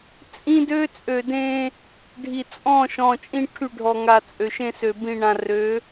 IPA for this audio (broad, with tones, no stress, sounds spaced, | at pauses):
t͡sʼ ĩ˦ d ø˦ t͡sʼ ø˨ d ẽ˦ | ɖʱ i˨ t͡sʼ ɔ̃˦˨ ʃ ɔ̃˨ t͡ʃʼ ĩ˦ ʈʰ y˦˨ ɖʱ ɔ˨ ŋ a˨ t͡sʼ ø˨ ʃ ẽ˦ s ø˨ b ĩ˨ ɳ ã˨ r ø˨˦